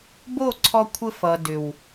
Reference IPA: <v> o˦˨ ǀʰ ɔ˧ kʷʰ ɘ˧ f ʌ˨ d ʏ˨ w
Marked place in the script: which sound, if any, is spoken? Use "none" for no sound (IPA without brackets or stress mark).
b